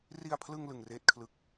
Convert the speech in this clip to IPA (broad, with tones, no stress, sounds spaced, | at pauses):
r i˧ a̯ pʰ l ɯ˧ ŋ l ɯ˧ ŋ r eː˥˩ t̚ kʰ l ɯ˥˩ k̚